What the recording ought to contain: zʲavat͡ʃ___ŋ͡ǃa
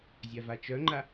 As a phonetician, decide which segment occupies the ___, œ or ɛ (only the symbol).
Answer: œ